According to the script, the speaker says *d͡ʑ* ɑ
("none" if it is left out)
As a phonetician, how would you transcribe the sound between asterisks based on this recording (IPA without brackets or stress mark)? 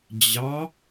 d͡ʑ